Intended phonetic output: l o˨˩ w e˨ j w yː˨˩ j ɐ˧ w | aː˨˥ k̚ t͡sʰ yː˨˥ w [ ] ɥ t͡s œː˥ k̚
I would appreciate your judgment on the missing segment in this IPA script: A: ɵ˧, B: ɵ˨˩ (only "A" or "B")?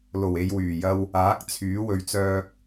A